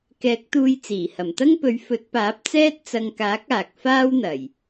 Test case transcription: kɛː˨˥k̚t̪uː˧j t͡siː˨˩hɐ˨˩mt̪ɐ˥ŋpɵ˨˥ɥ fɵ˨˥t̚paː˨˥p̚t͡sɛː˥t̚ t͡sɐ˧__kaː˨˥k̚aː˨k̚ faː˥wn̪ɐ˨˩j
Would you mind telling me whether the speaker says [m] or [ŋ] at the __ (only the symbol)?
ŋ